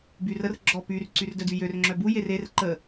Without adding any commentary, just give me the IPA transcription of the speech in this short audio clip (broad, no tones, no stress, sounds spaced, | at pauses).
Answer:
b y r ə r ɡ͡ǁ ɔ p y r ǀ y r d œ d y j ø r ŋ͡ǁ œ b u j e r e r ǃ ə